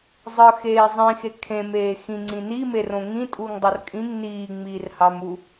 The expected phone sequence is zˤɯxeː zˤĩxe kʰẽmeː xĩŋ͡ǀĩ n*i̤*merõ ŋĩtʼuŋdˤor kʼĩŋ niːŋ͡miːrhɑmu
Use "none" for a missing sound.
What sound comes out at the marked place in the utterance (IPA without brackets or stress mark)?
i